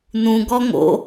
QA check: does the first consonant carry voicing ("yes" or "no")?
yes